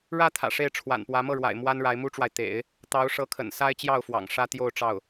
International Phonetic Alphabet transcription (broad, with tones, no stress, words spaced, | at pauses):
ɻä˥ t̪ʰä̰˨˩ʂe˥˩ɪ̯ʈ͡ʂʰwa̰˨˩npwä˧˥ mɤ˥˩ɻwa̰˨˩ɪ̯ mwa˥nɻa˧˥ɪ̯mu˥ʈ͡ʂwa˨ɪ̯ t̪ḛ˨˩˦ɪ̯ | t̪ɑ˧˥ʊ̯ʂɤ˧˥kʰə̰˨˩n sa˥ɪ̯t͡ɕjɑ˥˩ʊ̯fwɑ̰˨˩ŋ ʂä˥t̪jo˥˧ʊ̯ʈ͡ʂɑ˥˩ʊ̯